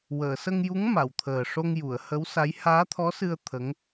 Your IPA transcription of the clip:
w əː˨˩˨ s ə˧ ŋ j u˧˥ ŋ m a˨˩˨ w t̪ʰ əː˨˩ ʂ o˧ ŋ j u˨˩˨ ə̯ h ə˧˥ w s a˧˥ j h aː˧˥ t̪ʰ ɔ˧˥ s ɨ˧ ə̯ t̪ʰ ə˧˥ ŋ

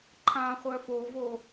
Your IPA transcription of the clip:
ǃʰ ã χʷ œ f o v o

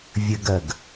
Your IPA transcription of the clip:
vʲ ɘ ɡ ɜ ɡ

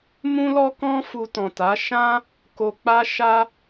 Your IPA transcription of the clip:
m ũ˦ l ɔ˦ k ɔ̃˦ f u˧ t ɔ̃˨ t a˨˦ ʃ ã˦ | k o˨ k͡p a˧ ʃ a˧

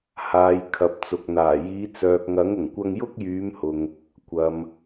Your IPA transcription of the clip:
h aː˨ j kʰ ɐ˨ p̚ t͡s ʊ˨ k̚ n̪ aː˨˩ j iː˨˧ t͡s œː˨ k̚ ŋ ɐ˨˥ ŋ ʊ˨˩ ŋ kʷ ɐ˧ ŋ j ʊ˥ k̚ j yː˨˧ m h ʊ˨ ŋ | kʷ ɐ˨ m

